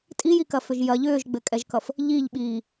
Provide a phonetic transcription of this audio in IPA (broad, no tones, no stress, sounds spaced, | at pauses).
tʼ i j i k ɐ f ʏ ʒ j ɐ ʎ ʏː ʒ ɡ͡b ɘ kʼ ɛ ʒ k ʌ f | ʎ i ʎ ɓ iː